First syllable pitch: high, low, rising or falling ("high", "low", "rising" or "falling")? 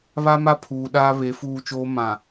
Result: high